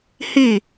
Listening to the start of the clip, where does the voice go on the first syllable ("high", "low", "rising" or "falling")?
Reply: falling